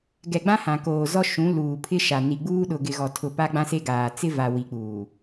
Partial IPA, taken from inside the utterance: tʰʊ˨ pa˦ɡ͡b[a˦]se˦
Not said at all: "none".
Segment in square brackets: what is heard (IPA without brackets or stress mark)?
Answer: ã˦